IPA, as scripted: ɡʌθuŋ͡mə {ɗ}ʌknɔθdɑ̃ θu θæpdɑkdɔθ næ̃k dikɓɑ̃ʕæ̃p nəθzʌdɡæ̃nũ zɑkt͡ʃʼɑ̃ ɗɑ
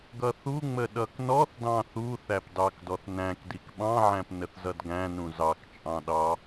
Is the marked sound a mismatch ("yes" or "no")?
no